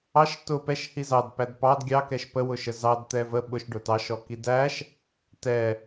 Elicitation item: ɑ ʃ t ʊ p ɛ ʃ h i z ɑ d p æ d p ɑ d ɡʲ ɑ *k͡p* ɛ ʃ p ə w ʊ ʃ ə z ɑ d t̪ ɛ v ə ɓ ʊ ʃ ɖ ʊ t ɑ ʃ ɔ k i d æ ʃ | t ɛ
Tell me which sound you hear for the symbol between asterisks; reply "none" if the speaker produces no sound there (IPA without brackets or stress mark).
k